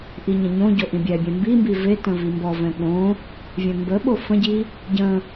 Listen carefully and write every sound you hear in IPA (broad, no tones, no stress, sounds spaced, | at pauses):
ʔ i ɲ ə̃ ɲ õ ɟ o ʔ ĩ bʲ ɛ bʲ ɛ̃ m b i m b i v e t ə̃ v i m b ɔ v ɛ̃ ɠ õ | vʲ ɛ̃ m b ə ɓ o f ə̃ ɟ i | ɟ ə̃